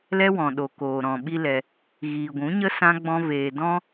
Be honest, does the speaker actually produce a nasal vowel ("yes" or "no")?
yes